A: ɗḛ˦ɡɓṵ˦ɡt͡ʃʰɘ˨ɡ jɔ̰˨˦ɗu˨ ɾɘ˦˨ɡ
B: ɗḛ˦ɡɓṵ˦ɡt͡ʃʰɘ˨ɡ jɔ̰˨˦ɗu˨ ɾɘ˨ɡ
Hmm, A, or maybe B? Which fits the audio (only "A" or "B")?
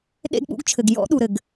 B